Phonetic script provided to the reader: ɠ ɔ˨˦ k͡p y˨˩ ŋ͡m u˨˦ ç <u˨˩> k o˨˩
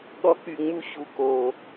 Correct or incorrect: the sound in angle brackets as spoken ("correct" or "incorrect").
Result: correct